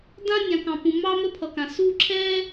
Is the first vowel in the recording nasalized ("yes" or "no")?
yes